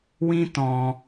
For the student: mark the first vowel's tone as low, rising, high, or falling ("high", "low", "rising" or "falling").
high